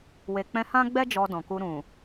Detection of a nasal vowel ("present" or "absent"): present